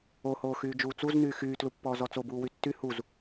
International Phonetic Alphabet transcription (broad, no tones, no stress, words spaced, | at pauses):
ohoː xyːd͡ʒuːt͡suznyː xyːtlupːɔːzɔ t͡sobuː wytːy huz